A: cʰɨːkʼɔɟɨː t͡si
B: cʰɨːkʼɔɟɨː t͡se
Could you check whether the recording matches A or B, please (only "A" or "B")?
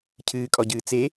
B